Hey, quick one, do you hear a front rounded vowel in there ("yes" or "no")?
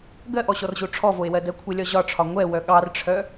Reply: yes